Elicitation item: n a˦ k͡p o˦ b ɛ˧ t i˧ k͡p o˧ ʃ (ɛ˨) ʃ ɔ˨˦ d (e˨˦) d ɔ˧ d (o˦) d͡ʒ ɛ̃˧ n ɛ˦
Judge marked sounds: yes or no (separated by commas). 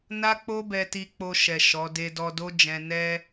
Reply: yes, no, yes